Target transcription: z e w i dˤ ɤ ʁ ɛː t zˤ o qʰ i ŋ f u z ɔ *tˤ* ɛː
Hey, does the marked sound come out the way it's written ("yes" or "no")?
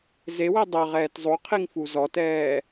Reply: no